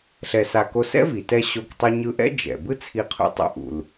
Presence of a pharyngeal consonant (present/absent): absent